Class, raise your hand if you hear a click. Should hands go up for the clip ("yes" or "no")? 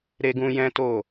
no